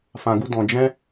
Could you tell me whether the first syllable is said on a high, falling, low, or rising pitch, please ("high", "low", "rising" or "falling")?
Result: low